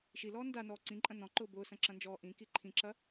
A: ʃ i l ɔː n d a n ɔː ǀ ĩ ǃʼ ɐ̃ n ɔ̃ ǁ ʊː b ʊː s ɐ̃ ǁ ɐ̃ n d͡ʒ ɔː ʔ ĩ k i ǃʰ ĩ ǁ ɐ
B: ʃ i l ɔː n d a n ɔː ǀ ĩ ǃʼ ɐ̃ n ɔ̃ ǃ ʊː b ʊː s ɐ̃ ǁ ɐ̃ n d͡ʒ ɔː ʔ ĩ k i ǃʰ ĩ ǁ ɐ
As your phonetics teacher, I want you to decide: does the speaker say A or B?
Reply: B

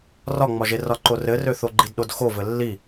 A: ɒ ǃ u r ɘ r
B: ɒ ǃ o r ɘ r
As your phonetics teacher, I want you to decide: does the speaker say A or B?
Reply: B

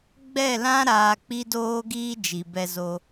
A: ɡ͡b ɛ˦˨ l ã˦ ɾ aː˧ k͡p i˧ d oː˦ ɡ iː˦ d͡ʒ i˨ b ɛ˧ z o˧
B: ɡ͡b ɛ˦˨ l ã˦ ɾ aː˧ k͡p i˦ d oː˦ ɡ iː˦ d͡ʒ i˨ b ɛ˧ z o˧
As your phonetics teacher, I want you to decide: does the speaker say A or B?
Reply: B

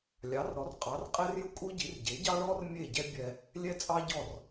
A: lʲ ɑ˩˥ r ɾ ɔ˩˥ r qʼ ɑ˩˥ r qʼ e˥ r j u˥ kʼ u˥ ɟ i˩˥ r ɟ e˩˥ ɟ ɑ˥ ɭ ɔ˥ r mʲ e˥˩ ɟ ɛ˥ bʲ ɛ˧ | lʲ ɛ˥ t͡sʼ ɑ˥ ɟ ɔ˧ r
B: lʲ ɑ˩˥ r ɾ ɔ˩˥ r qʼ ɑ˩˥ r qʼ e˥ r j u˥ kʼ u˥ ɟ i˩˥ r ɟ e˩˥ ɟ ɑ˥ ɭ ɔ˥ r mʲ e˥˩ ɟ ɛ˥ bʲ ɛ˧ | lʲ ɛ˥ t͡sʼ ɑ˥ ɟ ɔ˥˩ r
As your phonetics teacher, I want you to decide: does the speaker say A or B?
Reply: B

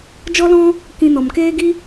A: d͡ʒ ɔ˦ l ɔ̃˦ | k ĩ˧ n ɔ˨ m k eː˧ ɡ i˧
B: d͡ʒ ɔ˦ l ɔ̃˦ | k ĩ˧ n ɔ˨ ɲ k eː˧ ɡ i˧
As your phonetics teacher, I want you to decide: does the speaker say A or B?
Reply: A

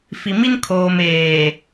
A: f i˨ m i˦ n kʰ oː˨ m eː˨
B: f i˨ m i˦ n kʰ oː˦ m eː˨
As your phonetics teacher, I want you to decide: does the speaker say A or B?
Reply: A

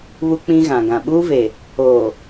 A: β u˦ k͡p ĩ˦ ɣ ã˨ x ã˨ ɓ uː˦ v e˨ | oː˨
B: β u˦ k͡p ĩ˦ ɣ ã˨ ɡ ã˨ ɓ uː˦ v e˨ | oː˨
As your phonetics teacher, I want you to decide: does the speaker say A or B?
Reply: B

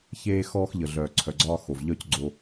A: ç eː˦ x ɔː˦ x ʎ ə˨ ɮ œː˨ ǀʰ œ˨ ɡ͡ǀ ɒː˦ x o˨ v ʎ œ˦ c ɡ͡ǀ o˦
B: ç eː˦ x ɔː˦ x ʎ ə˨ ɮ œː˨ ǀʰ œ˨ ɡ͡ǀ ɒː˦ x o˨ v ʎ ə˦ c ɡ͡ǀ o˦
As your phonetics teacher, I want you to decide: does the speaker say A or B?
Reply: A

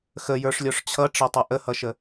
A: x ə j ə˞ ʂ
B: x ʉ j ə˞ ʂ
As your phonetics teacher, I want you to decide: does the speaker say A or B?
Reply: A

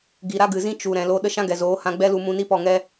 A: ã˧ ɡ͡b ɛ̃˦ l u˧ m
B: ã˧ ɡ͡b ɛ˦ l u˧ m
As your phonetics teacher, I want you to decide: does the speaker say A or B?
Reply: B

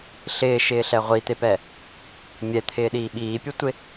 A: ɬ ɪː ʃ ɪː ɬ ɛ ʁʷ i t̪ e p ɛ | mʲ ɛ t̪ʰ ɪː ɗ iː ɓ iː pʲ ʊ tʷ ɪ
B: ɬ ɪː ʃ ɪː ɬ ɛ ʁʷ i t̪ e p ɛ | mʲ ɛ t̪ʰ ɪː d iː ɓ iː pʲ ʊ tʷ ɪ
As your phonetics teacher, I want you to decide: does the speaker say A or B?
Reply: A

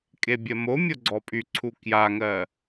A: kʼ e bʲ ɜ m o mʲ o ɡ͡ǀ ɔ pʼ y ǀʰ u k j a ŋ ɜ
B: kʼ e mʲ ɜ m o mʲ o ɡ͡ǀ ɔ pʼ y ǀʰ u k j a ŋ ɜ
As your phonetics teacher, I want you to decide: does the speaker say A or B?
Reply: A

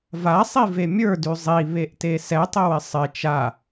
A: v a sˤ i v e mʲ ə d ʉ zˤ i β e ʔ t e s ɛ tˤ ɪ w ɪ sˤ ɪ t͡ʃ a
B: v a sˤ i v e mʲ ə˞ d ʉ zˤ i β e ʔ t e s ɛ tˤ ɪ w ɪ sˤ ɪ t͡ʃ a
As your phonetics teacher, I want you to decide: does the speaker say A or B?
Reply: B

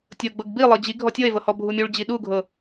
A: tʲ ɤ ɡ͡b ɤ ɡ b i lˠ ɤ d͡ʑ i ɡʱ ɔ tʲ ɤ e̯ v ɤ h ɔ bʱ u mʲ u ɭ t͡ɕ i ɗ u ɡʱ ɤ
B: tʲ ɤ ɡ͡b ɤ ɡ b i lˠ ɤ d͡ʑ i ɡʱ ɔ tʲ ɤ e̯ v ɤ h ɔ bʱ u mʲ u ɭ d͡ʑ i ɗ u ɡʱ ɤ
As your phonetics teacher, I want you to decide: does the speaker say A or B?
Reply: B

